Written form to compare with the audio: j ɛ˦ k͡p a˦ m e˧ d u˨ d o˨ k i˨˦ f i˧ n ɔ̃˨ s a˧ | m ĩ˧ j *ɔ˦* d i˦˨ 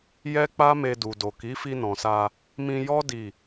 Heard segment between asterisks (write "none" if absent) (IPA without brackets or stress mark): ɔ˦